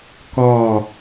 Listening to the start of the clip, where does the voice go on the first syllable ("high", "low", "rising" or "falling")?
falling